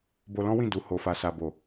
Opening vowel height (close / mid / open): mid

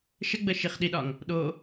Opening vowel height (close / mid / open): mid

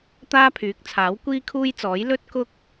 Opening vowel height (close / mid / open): open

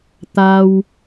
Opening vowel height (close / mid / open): open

